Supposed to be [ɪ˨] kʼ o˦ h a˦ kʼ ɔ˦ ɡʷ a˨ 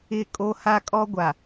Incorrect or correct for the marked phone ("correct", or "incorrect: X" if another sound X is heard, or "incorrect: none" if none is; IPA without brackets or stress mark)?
incorrect: ɪ˦˨